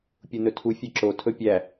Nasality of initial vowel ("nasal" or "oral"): oral